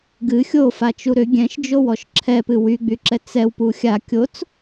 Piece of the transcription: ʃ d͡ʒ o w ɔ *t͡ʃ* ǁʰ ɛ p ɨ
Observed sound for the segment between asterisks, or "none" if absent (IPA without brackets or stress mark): ʃ